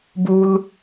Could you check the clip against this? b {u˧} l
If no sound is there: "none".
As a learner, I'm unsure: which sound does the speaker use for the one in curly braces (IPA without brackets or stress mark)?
u˧